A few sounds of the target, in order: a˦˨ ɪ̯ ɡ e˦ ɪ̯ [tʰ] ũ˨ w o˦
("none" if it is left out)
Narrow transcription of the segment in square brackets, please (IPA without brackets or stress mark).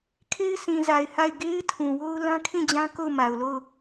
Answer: tʰ